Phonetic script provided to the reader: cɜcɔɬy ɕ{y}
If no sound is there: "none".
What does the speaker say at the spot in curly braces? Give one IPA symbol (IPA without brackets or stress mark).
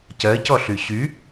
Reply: y